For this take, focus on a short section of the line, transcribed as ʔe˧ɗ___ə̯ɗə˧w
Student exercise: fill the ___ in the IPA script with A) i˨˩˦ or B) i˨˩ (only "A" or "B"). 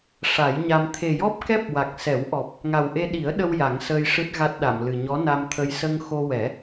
A